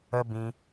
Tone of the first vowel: high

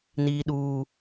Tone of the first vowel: low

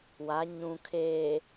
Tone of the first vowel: rising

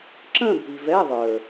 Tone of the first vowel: falling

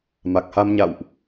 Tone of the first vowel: low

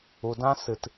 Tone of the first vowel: low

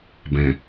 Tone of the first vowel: low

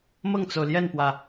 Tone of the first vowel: falling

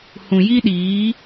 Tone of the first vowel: low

